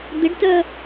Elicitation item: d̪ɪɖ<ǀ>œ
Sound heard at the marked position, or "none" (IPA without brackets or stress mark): t